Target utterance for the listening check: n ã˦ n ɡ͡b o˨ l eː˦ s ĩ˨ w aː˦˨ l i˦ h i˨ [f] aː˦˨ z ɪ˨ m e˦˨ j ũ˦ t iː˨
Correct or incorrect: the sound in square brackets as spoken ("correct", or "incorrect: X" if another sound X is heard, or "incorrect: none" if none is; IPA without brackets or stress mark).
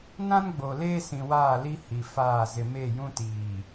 correct